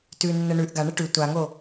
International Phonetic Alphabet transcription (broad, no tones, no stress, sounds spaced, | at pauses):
t ʉ nː ə ɳ ʉ ʔ ɡ a ɳ ə ʈ ʉ tʷ a ŋ o